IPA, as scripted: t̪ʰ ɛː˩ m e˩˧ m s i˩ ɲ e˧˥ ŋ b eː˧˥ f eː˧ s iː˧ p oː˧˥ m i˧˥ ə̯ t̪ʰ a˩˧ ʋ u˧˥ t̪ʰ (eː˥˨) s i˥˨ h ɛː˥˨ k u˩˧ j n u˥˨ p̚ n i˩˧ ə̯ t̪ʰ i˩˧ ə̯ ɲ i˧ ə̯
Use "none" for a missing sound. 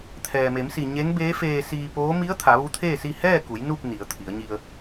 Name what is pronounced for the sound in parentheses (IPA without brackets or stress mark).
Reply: eː˥˨